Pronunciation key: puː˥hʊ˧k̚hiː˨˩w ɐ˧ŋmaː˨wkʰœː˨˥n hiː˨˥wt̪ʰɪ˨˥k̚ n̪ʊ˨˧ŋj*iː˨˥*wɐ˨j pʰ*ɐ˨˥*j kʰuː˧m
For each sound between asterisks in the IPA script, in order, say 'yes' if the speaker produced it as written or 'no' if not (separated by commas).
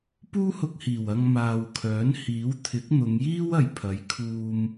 no, yes